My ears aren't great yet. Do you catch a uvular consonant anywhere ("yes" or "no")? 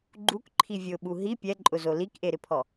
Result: no